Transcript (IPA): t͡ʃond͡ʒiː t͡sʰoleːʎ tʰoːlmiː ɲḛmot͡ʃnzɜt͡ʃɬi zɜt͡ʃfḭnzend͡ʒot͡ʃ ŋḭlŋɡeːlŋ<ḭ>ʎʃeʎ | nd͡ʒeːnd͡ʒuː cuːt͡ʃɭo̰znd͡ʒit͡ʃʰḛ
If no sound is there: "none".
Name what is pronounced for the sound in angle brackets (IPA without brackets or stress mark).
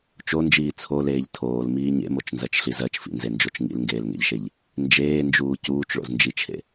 ḛ